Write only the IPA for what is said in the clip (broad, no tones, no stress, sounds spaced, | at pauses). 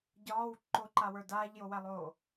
ɟ ɒː w ǃ o ǃ a w ə˞ d aː ʎ j o w æ lˠ oː